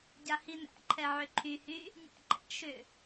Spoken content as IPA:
ɟ a h i n æ̰ ǃʰ ɛ ʕ ʏ ǃʰ y h y | nʲ æ̰ ǃ ɛ̰ ʃ ʏ

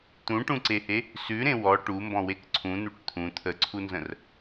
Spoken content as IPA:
t̪ ũ ʈ ũ ǀ e h e | s ʉ ɾ ẽ w ɔ ʈ u m b ɔ̃ w e k ǀʰ ũ n̪ u ʈ t̪ʰ ũ t̪ʰ ə ǀʰ u n z ə̃ r

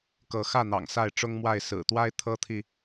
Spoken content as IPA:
k ɤ˨˦ x ä˥˨ n̪ ɑ̰˨˩ ŋ s a˥˨ ɪ̯ ʈ͡ʂ ʊ˦ ŋ m w a˥˨ ɪ̯ s ɹ̩˨˩ t̪ w a˦ ɪ̯ t̪ʰ ɤ˦ t̪ʰ i˨

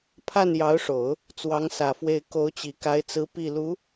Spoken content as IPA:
pʰ a˥˩ n j ɑ˧˥ ʊ̯ ʂ o˨˩˦ ʊ̯ | t͡s w ɑ˧˥ ŋ s ä˨˩ f w e˥˩ ɪ̯ k o˧˥ ʊ̯ t͡ɕ i˨˩ k a˧˥ ɪ̯ t͡s ɹ̩˧˥ p i˥˩ l u˧˥

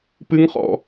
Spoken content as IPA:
p ɨ ŋ χ ɔ̰

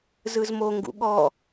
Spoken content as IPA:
z ɯ z m o ŋ ɡ ṵ ɠ ɔ

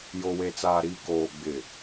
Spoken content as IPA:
j o˨ w e˨ t͡s aː˨ ɾ iː˨ k oː˨ ɡ͡b ɪ˨

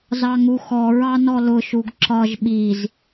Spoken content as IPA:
z ɑ ŋ u x ɔ ɹ ɑ n ɔ l ʊ ʃ u ɡ ǁ ɒ ʒ ɓ i z

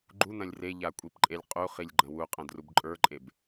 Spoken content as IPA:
ɡ͡ǃ u n̪ ɐ̃ lʲ r e ʎ a kʷʼ i p ǃʼ e lʲ qʼ u χ i lʲ ɡ͡ǃ ɐ̃ w u qʼ ɐ̃ d r u b ǃʼ ə˞ ǃʼ e b

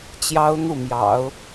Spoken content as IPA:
t͡ɕ j ɑ˥ ʊ̯ n̪ u˥˩ m j ɑ̰˨˩˦ ʊ̯

